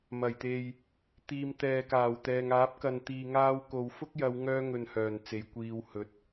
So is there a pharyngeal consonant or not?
no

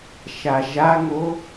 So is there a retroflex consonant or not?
no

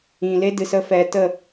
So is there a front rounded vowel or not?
no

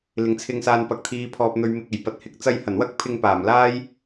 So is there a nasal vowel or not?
no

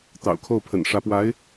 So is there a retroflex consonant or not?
yes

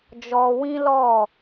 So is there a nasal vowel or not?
yes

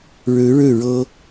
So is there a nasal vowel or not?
no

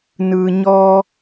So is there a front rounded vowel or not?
no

